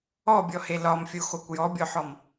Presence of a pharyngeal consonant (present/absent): present